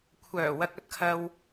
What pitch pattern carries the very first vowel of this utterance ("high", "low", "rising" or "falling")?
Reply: low